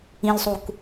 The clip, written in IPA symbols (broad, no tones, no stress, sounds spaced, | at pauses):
ĩ l sˤ u k